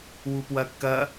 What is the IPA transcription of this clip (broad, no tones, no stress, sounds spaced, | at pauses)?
w u p w ɐ kː ɐ